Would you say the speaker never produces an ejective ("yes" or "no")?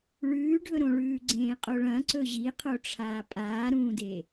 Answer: no